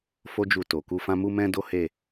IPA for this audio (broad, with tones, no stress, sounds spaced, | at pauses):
f o˦ d͡ʒ u˧ t o˨ k u˧ f ã˦ m u˦ m ɛ̃˦ d o˦ h e˦˨